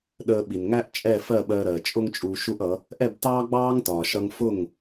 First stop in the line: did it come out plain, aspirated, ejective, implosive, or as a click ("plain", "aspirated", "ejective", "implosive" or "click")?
implosive